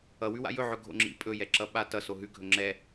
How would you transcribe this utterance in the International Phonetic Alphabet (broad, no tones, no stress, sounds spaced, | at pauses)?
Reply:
ʌ w ʉ w a̰ j ɵ ʕ ɵ ɡʱ o̰ ŋ͡ǁ ḭ pʼ ɵ j ɛ ǁ ʌ ɓ a t ʌ s o ɦ ʉ ɡʱ ɵ ŋ͡ǁ ɛ